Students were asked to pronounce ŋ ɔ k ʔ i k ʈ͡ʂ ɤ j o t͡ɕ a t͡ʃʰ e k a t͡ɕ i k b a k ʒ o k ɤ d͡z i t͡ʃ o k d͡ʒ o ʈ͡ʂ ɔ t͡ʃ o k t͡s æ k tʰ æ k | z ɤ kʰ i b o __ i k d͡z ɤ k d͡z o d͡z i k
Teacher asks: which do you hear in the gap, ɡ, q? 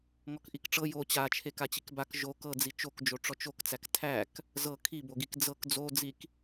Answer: ɡ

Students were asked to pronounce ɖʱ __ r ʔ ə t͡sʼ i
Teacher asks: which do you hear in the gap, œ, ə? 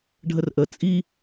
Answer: ə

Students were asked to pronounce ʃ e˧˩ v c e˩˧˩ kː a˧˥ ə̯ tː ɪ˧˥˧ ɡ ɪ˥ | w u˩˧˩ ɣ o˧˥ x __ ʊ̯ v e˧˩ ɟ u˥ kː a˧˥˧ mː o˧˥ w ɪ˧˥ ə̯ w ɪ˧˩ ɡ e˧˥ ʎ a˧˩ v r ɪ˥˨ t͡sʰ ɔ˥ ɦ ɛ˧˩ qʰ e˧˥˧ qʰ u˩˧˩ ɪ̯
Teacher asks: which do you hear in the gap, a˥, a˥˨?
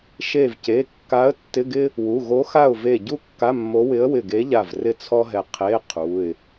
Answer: a˥˨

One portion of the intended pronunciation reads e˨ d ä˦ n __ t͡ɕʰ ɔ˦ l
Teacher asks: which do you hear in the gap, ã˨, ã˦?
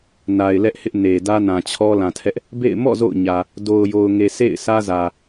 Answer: ã˨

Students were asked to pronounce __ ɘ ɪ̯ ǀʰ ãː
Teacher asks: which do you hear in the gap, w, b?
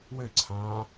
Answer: w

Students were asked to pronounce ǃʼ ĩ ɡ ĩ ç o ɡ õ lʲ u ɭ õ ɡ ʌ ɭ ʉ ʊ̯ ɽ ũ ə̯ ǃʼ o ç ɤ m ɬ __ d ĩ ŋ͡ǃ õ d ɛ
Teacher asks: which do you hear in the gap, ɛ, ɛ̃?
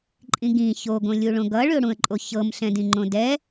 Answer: ɛ̃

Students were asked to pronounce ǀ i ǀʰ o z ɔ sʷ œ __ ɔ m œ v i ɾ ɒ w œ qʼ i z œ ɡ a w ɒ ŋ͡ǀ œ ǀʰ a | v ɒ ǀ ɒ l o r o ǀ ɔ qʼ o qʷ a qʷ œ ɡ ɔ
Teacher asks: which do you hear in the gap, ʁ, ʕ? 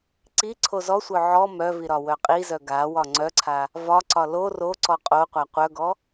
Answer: ʕ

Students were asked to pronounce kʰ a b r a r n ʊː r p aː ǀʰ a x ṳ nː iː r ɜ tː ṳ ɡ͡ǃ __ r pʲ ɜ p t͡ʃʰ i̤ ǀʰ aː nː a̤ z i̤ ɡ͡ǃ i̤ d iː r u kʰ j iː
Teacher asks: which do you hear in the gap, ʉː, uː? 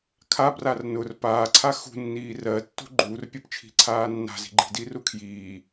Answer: uː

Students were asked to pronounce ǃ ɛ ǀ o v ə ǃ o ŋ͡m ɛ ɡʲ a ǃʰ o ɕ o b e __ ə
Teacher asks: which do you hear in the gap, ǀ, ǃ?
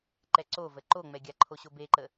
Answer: ǃ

